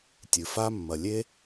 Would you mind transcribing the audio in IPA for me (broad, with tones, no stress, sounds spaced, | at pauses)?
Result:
tʲ ɨ˩ f a˦ mː ɐ˨ lʲ e˥